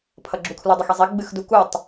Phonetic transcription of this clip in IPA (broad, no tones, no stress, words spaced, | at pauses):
pʰʌɡ͡ǁukʰludˤʏx izˤi ɡ͡bɨxdukutˤ